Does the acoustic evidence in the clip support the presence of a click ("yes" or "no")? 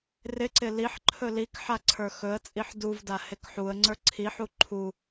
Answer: yes